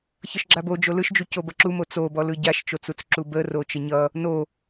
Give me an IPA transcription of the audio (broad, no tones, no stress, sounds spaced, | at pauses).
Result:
ç ʌ ʃ ɡ͡ǁ a b o d͡ʒ o l ɯ ʃ d͡ʒ u c o b ʌ ǁ u m o t͡s o b ɔ l ɯ ɟ a ʃ t͡ʃ o t͡s u t͡s ǁ u b ə r o t͡ʃ ə ɲ ʌ | n o